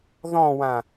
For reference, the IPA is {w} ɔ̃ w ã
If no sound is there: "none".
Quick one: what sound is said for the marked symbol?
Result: ð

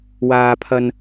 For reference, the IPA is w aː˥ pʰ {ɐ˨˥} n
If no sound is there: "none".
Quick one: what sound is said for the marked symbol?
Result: ɐ˥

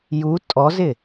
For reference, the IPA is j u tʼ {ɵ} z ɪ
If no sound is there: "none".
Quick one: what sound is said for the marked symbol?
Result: ɔ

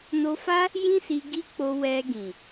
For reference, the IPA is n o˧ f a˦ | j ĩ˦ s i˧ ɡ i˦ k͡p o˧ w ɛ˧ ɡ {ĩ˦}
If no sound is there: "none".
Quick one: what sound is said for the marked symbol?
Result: ĩ˨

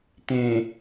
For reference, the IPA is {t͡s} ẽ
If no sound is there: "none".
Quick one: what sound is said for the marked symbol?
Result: t̪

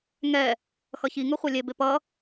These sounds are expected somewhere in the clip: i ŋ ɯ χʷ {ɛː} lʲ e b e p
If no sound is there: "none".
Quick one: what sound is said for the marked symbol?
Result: ɛ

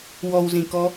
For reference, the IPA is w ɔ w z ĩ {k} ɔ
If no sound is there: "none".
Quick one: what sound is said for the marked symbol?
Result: k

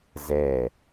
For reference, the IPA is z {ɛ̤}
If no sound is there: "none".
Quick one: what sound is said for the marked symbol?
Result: ɛ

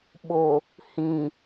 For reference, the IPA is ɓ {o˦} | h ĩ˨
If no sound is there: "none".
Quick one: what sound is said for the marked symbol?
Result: o˨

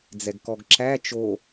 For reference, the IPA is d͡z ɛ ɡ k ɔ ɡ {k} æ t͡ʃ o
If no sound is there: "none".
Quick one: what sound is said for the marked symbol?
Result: ǁ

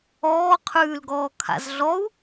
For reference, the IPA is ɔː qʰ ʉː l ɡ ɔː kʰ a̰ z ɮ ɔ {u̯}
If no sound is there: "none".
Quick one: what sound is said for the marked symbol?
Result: u̯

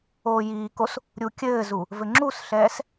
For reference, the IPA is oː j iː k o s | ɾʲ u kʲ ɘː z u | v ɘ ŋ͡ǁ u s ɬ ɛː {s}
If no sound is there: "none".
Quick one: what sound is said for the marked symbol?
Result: s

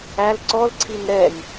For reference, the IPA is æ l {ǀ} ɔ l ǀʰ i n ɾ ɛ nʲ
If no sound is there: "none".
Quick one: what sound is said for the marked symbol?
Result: ǀ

